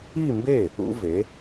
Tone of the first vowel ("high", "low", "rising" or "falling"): falling